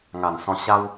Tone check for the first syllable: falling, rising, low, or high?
low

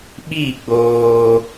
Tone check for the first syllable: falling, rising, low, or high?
falling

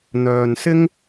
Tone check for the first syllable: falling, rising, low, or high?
low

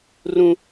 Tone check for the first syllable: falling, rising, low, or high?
high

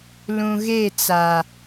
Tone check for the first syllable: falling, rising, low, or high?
low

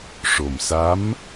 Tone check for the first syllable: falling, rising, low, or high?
low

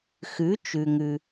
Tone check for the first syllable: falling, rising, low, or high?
rising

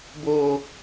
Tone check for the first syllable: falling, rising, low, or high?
low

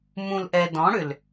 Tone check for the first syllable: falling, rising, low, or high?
low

